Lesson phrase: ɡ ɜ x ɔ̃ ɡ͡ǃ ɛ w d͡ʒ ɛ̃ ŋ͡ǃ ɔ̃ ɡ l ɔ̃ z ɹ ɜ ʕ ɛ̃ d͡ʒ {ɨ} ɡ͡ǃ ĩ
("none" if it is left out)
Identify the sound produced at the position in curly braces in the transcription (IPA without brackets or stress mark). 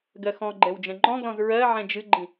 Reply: ɨ